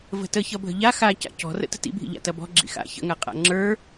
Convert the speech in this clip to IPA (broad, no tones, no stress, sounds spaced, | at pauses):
v ə̤ t ə ç ʌ bʱ ə̤ ʎ a x a c a̰ c ɔ̤ r ə̰ t ə̤ t ḭ bʱ ḭ ʎ a̰ t ɐ b ɔ̤ ɡ͡ǁ ḭ x a̰ ç ə̰ ŋ a qʼ a̰ ŋ͡ǁ ə˞